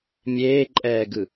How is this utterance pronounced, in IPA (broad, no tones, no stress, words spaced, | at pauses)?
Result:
mʲeːǃʼɛːɡɯ